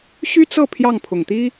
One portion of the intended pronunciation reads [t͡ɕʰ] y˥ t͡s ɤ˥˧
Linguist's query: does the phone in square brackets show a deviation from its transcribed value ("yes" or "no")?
yes